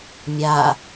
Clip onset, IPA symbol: mʲ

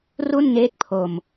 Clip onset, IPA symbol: r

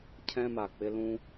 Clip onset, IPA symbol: cʰ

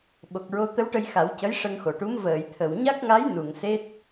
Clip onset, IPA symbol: ɓ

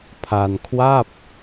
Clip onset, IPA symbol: pʰ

